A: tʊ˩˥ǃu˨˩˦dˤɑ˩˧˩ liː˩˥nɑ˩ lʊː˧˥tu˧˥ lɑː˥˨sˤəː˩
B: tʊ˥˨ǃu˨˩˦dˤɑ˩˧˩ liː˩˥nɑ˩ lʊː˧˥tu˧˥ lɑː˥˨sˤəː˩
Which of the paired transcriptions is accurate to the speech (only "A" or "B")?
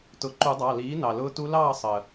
A